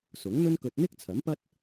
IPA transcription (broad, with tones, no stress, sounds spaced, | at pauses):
s ʊ˨˥ ŋ n̪ ɵ˥ n k ɵ˧ t̚ n̪ ɪ˥ k̚ t͡sʰ ɐ˨˥ m p ɐ˥ t̚